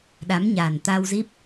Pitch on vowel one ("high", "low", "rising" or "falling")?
rising